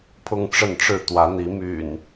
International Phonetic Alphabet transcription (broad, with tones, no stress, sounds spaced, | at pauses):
pʰ ʊ˦ ŋ ʈ͡ʂ ə˥˨ n ʈ͡ʂ ɻ̩˥˨ t̪ w ä˨˦ n̪ i˨˦ m y̰˨˩ n